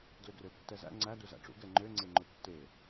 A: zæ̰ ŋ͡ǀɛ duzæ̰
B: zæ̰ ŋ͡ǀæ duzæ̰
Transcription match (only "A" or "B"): B